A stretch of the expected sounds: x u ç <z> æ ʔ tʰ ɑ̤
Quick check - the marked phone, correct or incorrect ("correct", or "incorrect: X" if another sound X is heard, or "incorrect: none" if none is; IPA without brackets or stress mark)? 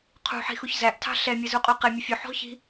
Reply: correct